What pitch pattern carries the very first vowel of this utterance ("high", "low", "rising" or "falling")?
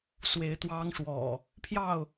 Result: rising